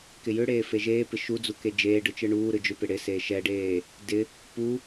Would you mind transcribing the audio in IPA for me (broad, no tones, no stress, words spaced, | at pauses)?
kɪjʏɽeː feʒeːpɪ ʃud͡zuke d͡ʒeːɖɯ t͡ʃɯɳuː ɾɯd͡ʒʏpɪ ɽɪ seːʃɛɖeː | dɪ | pu